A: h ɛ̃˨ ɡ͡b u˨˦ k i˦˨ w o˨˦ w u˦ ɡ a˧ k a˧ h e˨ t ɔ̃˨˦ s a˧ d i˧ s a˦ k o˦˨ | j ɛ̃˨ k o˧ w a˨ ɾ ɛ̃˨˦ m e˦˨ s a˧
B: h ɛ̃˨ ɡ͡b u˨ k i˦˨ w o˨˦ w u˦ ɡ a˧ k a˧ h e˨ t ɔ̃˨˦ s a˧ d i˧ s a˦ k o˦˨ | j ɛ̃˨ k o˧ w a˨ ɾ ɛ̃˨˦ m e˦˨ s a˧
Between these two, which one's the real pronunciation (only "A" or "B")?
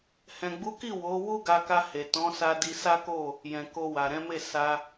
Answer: A